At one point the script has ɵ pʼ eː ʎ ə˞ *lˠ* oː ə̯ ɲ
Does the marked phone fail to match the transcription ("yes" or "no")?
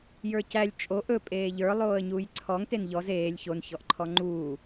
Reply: no